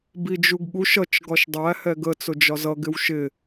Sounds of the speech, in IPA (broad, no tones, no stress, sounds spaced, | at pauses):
b i d͡ʒ u ɡ ɠ u ʃ ʌ t͡ʃ ɡ ɒ ʃ dˤ æ h ɛ ɡ ə t͡s ʊ d͡ʒ ɒ z ʌ ɡ ɪ w ʃ ɪ